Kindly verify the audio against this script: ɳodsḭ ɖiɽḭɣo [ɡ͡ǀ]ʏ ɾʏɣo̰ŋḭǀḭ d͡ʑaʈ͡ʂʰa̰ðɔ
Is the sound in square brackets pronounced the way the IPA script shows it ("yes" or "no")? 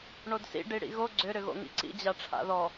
yes